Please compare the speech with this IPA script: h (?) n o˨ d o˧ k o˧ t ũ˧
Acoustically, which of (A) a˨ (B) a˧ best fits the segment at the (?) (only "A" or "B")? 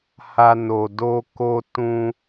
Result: B